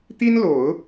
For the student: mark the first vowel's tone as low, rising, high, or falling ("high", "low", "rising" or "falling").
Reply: high